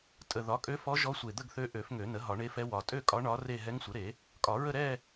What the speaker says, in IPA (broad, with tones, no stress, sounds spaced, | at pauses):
tʼ ə˨˩ ð ɒ˩˥ kʼ ø˧˥ f ɔ˧˥ ʒ ɔ˧˥ sʷ e˨˩ d̪ ə˥˧ ɡ θ ø˧˥ ʔ ø˨˩˦ f ŋ ø˨˩˦ n ə˩˥ ɦ ɒ˨˩˦ ɳ e˧˥ f ɛ˧˥ w ɒ˨˩ tʼ ø˥˧ kʼ ɒ˧˥ ɳ ɒ˧˥ r e˥˧ ɦ ɛ˧˥ ŋ sʷ ə˩˥ ɾ e˨˩˦ | kʼ ɒ˨˩˦ ɹ ə˥˧ ɾ ɛ˥˧